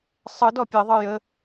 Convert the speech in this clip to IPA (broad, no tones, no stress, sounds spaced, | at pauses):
sˤ ɯ d ɔ pʲ e ðˤ ɯ j ə